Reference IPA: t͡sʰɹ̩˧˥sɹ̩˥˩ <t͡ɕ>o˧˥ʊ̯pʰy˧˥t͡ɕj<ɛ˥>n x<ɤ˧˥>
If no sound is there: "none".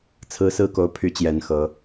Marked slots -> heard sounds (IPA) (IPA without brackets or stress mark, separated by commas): k, ɛ˨˩, ɤ˧˥